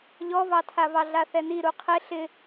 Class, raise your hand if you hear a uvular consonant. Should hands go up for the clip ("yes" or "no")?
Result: yes